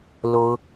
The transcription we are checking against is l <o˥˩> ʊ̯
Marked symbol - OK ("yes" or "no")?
no